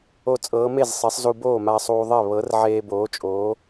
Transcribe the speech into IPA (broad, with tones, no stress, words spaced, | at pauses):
o˧ t͡sʼɤː˨˥ me˥˩z sˤe˨˥sˤzu˧ boː˥˩ma˧sˤuː˧ðˤɛ˥˩ βɤ˨˥r ʕeː˧boː˨˥t͡ʃʼoː˨˥